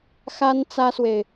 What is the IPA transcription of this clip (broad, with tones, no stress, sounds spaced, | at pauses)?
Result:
x a˥ n t͡s ä˥ s w e˨ ɪ̯